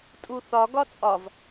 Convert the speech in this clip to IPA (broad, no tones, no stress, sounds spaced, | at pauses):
tʼ u θ ɒ ɡ ɒ t͡sʼ ɒ v